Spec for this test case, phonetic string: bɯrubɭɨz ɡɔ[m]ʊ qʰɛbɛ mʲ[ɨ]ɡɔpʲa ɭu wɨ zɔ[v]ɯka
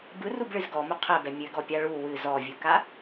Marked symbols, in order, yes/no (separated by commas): yes, yes, no